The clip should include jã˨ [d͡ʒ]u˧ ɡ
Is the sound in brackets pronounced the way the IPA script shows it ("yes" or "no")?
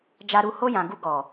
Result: no